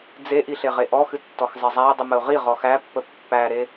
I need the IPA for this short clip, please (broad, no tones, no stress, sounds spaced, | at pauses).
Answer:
d͡z e ʔ i ɬ e ʁ e ʔ ɔ x ɨ tː ɔ x zˤ e zˤ æ ɪ̯ dˤ ɨ m ə ʊ̯ ʁ i ʁ ɔ x æ pː ə pː æ ɾ e